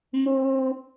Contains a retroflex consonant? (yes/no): no